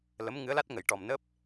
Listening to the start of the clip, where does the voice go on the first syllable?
rising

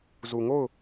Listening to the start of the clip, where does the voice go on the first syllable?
low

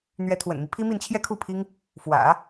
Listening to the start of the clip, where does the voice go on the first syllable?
rising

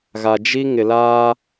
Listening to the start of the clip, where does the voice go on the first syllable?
low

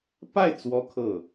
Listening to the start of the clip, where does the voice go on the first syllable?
falling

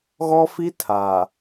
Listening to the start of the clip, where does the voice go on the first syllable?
high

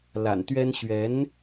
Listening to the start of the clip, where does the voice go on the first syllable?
low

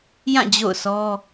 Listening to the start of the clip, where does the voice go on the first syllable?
falling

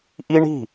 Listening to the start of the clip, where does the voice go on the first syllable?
high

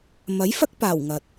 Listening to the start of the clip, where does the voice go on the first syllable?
rising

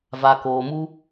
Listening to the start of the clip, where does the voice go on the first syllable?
low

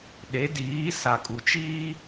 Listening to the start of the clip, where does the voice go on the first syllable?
rising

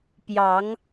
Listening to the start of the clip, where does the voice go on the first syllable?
rising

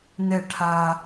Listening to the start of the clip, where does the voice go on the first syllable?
falling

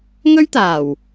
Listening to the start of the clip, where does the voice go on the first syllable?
high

